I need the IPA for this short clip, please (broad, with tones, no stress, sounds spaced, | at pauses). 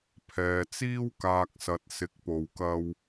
pʰ ɛː˨ t͡s iː˧ w k aː˨ k̚ s ɐ˨ t̚ s ɪ˨˥ k̚ p o˨ w k ɐ˧ w